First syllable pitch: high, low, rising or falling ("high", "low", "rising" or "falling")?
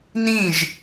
falling